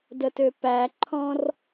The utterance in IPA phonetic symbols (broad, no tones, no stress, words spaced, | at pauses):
dətøpæǃʰɔ̃r